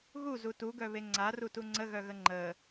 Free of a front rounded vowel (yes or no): no